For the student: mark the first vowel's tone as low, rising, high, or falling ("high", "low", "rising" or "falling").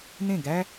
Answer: falling